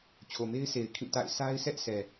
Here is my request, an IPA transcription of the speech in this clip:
t͡ɕʰ o˨ m e˦ ɪ̯ sʰ e˨ ɪ̯ kʰ ĩ˦˨ t a̰˦˨ ɪ̯ sʰ a˦ ɪ̯ sʰ ɛ˦ ʔ s ɛ˨

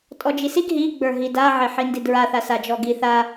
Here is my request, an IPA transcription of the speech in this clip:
tʼ ɔ d͡ʒ i s i ɡ ɦ i ɡ͡b ə˞ ɦ i d a ʕ e ħ i n d i d ɹ a θ a s a d͡ʒ ɔ ɡ i θ a

